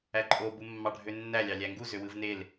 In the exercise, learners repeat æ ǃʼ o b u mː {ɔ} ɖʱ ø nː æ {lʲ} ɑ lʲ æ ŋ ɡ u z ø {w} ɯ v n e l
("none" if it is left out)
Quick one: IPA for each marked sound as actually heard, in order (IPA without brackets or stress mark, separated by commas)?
ɑ, lʲ, w